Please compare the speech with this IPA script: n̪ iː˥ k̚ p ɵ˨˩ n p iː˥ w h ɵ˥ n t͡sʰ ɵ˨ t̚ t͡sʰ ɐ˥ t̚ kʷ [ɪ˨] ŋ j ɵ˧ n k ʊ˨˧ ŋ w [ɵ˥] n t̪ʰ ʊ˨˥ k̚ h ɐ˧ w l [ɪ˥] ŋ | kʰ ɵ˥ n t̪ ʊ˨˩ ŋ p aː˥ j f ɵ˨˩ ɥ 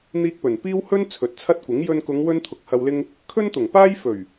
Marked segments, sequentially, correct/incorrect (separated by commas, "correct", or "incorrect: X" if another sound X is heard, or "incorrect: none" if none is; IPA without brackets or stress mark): incorrect: ɪ˨˥, correct, correct